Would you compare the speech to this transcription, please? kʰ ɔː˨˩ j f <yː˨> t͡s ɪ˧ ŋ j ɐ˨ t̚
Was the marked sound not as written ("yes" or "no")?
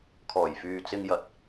no